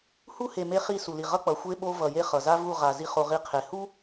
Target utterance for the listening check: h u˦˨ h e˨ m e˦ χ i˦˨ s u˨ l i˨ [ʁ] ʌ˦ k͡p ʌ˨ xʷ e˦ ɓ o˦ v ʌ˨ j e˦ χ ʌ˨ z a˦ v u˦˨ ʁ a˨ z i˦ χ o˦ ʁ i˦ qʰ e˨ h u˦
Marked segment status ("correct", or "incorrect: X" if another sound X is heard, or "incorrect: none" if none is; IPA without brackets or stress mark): correct